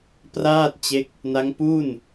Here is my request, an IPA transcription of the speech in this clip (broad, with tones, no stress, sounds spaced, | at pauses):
p r aː˥˩ t̚ t͡ɕ e˦˥ k̚ | n a˦˥ ŋ p u˥˩ n